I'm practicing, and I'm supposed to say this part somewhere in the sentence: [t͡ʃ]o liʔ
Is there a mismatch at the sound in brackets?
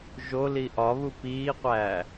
yes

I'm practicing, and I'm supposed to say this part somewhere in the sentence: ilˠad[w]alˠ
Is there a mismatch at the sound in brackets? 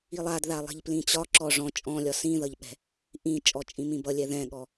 yes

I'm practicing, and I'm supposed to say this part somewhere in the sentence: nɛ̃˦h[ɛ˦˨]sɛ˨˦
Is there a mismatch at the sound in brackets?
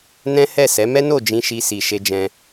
no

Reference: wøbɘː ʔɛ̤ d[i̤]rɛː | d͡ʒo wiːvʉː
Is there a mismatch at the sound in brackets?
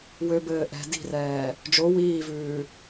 no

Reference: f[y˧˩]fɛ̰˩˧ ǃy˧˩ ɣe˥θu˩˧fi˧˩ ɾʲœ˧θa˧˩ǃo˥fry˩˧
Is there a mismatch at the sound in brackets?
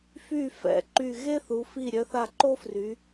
no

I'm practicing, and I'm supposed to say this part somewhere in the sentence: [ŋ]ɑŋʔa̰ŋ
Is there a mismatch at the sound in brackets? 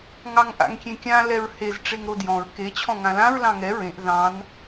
no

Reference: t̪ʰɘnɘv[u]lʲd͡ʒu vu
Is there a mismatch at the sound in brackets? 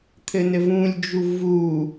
yes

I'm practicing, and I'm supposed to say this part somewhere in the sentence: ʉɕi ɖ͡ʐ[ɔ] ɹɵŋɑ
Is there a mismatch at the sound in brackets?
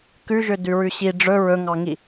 yes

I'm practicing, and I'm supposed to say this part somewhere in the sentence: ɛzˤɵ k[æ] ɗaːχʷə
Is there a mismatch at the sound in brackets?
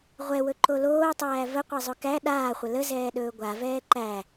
no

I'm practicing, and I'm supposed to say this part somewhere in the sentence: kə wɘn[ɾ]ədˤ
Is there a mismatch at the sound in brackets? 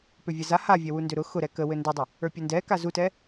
yes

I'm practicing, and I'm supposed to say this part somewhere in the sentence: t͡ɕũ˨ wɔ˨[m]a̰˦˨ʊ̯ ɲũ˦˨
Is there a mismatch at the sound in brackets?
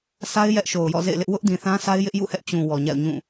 yes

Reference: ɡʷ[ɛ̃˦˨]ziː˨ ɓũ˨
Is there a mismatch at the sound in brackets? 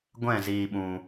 no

